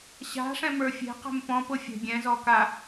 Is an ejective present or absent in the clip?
absent